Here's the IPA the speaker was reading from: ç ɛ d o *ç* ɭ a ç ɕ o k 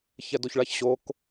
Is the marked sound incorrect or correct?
correct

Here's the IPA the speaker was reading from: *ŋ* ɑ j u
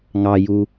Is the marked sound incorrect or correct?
correct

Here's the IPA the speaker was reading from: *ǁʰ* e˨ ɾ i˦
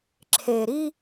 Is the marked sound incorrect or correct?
correct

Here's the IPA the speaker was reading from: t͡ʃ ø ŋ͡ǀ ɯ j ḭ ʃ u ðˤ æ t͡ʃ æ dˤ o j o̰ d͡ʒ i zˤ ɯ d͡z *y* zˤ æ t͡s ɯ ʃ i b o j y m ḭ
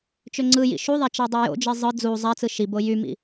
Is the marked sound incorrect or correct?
incorrect: u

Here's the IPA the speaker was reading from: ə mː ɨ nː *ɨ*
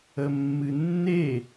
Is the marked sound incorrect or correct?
incorrect: e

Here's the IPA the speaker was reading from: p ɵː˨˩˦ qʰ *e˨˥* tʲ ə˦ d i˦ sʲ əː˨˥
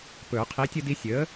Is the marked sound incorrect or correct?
incorrect: i˨˥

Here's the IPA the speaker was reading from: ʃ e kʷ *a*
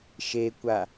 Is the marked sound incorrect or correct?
correct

